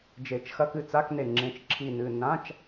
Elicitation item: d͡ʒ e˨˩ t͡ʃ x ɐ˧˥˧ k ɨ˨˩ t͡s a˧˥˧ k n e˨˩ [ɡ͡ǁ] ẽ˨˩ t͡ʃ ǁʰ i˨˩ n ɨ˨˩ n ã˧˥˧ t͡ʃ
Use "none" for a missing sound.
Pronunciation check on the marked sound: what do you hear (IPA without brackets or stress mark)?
ŋ͡ǁ